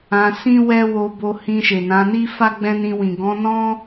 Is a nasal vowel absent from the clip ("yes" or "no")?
no